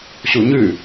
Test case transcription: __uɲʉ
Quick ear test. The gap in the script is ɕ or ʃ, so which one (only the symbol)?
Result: ɕ